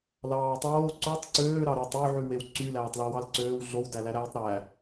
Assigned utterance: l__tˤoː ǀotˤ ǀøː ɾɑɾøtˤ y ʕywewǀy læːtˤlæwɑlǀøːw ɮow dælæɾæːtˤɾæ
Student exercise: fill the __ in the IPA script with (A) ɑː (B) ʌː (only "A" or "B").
A